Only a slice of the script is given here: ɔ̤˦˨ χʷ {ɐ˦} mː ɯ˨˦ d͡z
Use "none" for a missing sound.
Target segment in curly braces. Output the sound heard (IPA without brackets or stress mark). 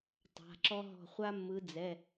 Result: a˦